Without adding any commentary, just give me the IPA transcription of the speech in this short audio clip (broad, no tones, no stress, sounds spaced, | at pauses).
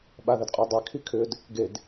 ɓ a ð ə d qʼ ə˞ dˤ ɛ kʰ i kʰ ʏ d | ɡ e d